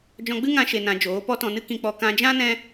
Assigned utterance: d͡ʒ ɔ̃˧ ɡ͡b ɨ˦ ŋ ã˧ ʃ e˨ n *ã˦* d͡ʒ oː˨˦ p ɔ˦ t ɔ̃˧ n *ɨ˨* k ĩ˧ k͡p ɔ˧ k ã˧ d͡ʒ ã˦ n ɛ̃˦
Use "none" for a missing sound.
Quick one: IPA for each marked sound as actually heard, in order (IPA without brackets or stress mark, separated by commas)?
ã˨, ɨ˦